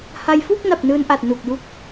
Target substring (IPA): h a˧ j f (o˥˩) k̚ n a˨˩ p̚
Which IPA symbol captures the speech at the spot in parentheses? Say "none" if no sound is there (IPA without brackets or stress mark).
u˥˩